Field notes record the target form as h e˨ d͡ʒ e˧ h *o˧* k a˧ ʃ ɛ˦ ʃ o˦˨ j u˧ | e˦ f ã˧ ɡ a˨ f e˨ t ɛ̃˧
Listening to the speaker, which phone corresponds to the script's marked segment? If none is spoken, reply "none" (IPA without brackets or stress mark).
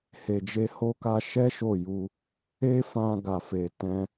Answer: o˧